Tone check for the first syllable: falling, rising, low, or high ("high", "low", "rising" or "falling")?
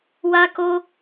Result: high